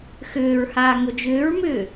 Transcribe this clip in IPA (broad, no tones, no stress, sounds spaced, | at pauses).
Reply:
x ʏː ɹ h aː ŋ o d͡ʒ ʏː ɹ m ʏː